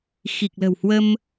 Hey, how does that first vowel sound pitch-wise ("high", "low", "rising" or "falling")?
low